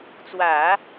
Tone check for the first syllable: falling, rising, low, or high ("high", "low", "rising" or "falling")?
low